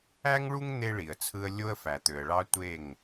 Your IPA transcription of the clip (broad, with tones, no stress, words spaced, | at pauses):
æ˦ŋɭu˦ŋ n̪e˦ɭi˨ə̯t͡sʰɯ˦ə̯ lʲo˦ə̯fæ˨t̪ø˨ə̯ɭɑ˦ tʷe˦˨ŋ